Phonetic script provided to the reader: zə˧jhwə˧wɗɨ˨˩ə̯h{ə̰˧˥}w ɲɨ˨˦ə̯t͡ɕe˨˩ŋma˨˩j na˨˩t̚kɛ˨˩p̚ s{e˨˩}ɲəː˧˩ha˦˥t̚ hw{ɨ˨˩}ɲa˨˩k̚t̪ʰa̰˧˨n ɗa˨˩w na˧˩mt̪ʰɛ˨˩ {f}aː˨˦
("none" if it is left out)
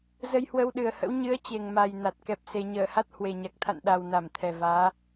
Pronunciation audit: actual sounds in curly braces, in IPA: ə̰˧˥, e˨˩, e˨˩, v

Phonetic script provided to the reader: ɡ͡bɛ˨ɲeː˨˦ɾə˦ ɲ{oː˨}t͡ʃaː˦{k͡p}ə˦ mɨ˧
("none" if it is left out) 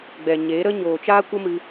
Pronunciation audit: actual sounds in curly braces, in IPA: oː˨, kʷ

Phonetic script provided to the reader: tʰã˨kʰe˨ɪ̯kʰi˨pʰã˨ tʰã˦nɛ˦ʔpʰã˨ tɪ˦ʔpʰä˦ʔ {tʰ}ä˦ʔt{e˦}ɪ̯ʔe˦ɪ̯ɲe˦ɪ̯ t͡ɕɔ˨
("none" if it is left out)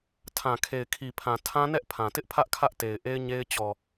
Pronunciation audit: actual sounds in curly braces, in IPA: kʰ, e˨

